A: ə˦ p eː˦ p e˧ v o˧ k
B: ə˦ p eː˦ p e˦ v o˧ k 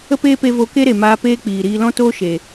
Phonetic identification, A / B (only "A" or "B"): A